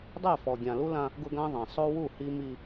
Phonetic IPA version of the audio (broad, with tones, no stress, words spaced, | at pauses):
dˤɛ˦˨fɔ˨ɡʲã˨ lu˦lã˦ | ɡʊ˦ɡã˦ðˤã˨ sˤo˦wu˦˨hi˦ mi˦